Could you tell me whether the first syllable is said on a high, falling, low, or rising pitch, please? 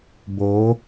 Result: rising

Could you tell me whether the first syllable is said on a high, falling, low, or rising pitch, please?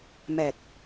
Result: low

